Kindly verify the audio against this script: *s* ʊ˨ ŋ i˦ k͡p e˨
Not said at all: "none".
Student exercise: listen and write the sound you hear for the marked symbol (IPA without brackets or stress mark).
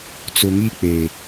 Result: t͡s